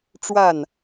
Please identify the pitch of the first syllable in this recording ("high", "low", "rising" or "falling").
falling